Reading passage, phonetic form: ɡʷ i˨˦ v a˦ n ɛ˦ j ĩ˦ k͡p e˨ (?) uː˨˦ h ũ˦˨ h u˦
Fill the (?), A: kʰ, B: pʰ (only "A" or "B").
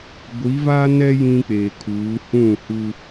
A